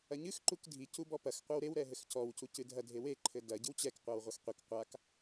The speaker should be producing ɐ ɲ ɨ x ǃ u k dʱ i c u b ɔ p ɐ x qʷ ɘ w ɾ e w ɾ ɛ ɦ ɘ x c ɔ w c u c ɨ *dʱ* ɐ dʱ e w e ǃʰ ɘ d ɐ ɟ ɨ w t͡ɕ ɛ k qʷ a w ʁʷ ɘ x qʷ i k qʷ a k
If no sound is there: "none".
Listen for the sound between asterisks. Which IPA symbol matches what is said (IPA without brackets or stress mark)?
dʱ